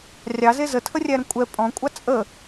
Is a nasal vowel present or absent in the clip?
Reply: present